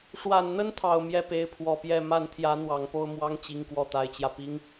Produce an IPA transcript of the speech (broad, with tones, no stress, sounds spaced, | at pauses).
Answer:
ʂ w a˨˩ n n̪ ə˥ n t̪ʰ ɑ˨˩ ʊ̯ m j ɛ˥˩ p e˧˥ ɪ̯ pʰ w ɔ˨˩ p j ɛ˥˧ m a˥˩ n t̪ʰ j ä˧˥ n̪ w ɑ˨˩ ŋ p o˥˩ ʊ̯ m w ɑ˥ ŋ t͡ɕ i˧˥ ŋ k w ɔ˥˩ t̪ a˧˥ ɪ̯ t͡ɕ j ä˧ p i˧˥ ŋ